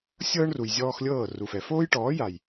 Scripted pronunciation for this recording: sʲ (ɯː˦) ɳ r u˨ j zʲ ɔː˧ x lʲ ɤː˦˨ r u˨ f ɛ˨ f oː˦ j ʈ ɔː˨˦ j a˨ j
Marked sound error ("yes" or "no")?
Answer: yes